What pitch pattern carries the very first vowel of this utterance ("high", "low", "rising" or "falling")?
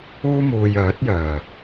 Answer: high